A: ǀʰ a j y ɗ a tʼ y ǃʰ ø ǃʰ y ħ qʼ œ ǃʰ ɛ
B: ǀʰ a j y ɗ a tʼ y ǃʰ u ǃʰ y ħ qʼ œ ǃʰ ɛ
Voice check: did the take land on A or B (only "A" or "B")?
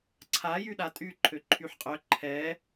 A